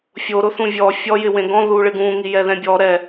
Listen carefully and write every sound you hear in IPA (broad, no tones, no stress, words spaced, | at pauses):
fʲoɾʊ θũvʲɔ fʲɔjɪ wẽɡɔ̃ ðuɭɪɡũ ŋijɛðɛ̃bʲɔ ɾɛ